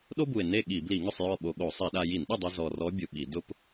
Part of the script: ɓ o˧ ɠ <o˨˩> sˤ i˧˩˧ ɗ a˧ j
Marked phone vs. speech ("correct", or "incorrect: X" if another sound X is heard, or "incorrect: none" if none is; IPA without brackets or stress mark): incorrect: o˧˩˧